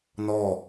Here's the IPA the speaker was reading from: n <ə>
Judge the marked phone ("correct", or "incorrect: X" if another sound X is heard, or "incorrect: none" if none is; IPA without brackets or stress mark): incorrect: ɔ